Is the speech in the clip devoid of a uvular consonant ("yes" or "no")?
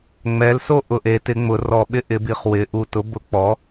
no